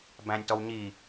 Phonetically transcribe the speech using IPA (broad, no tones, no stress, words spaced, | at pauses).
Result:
bæ̃nʲtɔwɲi